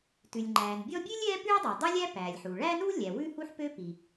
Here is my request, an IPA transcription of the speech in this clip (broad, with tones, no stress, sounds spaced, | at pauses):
t ʉ˩ lʲ ŋ͡ǃ æː˩ n bʲ ɔ˥ bʲ ʉ˥ lʲ ɛː˥ p ʉ˥ ɪ̯ dˤ u˩ dˤ ø˥ lʲ æ˥ p æː˩ lʲ ħ uː˩ ɭ æː˥ n uː˥ lʲ æ˩ w ʉ˥ h u˥ ħ p ø˥ p i˩